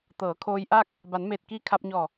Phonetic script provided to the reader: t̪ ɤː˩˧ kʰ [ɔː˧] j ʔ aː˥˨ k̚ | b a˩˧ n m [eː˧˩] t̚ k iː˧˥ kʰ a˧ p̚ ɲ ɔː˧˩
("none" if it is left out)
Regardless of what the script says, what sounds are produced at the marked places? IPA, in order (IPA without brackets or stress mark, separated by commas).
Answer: oː˧, eː˧˩